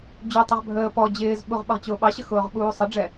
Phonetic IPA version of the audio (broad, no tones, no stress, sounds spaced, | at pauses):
d͡ʑ u tˤ ʌ ʁ bʱ əː p ɔ d͡ʑ ɪː z ɓ u ʁ ɓ ʌ ʁ t͡ɕ ʊː ɓ ɑ ɕ ə x ʊː ʁ ɓ uː sˤ ə ɖ͡ʐ ɛ